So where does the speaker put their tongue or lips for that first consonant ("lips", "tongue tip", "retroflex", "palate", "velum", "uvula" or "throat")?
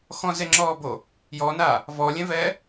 velum